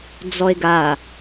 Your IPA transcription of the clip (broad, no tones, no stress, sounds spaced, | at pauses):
d͡z ɔ e̯ ɡ a